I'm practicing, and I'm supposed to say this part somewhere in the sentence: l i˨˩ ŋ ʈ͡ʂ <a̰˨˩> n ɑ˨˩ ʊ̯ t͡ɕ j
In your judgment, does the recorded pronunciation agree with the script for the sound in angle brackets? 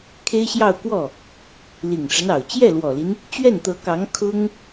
no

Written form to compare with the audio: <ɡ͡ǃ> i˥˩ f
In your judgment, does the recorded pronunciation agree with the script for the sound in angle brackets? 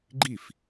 yes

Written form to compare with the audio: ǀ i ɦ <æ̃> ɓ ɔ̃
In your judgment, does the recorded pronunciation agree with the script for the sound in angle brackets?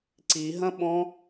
no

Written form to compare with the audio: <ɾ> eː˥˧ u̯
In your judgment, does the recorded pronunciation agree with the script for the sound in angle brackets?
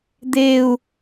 no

